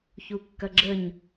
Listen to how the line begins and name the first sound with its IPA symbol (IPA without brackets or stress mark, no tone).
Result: ç